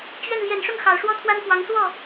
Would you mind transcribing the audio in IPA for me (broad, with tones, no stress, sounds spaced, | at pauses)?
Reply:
t͡ɕ ɥ ɛ˥˩ n l j ɛ˨˩ n ʂ ʊ˥˩ ŋ x ɑ˨˩ ʊ̯ ʂ w ɔ˥ t̪ʰ w a˥ n k w ɑ˧˥ ŋ s w ɔ˥˩